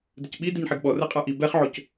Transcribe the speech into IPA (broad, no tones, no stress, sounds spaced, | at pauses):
d ɪ c ɓ i d i ɲ ħ e ɡ ɓ ɔ r ɛ qʼ a ʔ i b ɛ χ ʕ o c